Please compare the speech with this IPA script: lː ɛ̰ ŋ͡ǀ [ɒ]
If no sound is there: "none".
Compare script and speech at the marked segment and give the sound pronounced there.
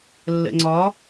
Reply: ɒ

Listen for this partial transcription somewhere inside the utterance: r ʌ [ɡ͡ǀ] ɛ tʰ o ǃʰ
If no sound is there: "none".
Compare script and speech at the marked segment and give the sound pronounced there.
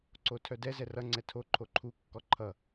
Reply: ŋ͡ǀ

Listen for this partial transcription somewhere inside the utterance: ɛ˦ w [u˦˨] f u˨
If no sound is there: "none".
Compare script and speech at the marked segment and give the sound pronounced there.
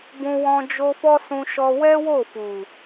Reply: o˦˨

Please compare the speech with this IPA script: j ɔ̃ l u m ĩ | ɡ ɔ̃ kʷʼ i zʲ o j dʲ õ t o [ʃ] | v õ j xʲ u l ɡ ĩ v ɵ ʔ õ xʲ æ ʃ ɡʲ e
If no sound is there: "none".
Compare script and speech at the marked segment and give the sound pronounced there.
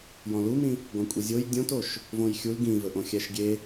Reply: ʃ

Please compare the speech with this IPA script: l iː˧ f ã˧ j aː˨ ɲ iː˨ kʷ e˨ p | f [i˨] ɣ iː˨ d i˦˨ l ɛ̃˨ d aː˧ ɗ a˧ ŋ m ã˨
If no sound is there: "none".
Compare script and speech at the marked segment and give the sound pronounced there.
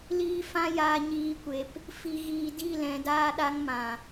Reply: i˨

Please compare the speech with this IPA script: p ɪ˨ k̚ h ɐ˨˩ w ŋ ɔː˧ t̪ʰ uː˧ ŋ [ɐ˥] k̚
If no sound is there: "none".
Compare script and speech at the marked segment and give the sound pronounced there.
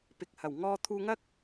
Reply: ɐ˥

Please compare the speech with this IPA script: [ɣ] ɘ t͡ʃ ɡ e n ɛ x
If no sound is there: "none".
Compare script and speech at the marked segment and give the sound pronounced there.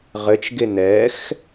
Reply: ʁ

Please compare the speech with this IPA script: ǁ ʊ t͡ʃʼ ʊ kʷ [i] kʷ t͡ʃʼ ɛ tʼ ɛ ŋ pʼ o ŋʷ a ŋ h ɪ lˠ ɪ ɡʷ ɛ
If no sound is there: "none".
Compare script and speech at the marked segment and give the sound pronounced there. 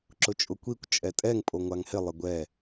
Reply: i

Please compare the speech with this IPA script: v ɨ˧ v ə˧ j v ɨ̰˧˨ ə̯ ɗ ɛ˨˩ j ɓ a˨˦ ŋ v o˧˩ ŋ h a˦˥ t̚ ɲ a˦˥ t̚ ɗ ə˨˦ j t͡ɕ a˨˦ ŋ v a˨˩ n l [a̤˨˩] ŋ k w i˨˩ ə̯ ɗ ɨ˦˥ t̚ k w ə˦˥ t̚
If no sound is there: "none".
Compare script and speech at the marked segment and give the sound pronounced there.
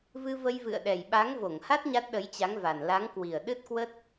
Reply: a˨˦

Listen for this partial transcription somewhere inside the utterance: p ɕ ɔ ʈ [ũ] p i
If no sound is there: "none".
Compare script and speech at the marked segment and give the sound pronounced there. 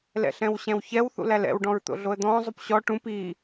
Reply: ũ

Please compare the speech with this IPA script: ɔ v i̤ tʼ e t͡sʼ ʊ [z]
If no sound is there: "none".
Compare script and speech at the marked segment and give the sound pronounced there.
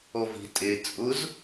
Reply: z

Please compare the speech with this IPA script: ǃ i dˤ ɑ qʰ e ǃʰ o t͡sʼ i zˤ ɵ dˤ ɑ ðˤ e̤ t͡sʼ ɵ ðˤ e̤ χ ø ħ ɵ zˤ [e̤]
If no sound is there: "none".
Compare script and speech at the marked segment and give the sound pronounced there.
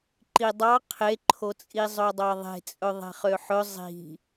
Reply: i̤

